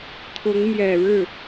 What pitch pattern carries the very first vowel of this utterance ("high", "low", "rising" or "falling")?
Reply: rising